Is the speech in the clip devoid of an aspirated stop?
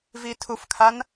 no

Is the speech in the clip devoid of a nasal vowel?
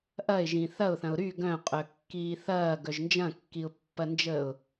no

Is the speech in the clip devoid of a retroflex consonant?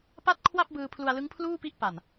yes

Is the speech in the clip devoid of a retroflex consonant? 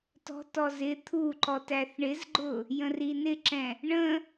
no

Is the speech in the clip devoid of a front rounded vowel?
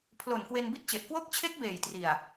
yes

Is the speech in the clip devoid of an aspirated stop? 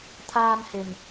no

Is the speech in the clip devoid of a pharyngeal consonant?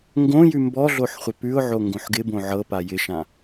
no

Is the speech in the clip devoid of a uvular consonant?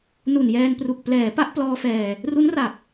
yes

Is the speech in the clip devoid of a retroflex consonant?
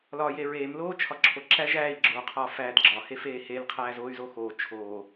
yes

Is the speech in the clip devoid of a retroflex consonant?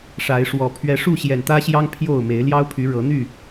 no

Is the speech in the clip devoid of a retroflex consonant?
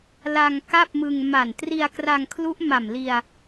yes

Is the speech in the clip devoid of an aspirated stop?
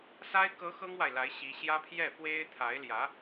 no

